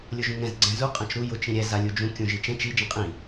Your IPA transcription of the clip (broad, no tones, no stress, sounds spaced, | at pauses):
lʲ ʊ ʒ ũ ŋ ɛ̃ z ɡ͡ǀ ɛ̃ z u qʼ ã t͡ʃ ɾ u j ʊ t͡ʃ ĩ ɾʲ ɛ z a lʲ u d͡ʒ ũ kʲ ũ ʒ i t͡ʃ ɛ̃ t͡ʃ i d͡ʒ ĩ qʼ ĩ